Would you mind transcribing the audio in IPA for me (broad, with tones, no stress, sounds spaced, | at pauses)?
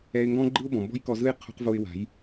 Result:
ɛ˧ ɪ̯ ŋ ɡ ɔ̃˦ ɡ͡ǃ ɯ˦ ʊ̯ b ɔ̃˨ m b ɔ̤˦ j k ɔ˧ z ɯ˦ j qʰ ṳ˧ q v o˧ ɪ̯ w a̤˨˦ j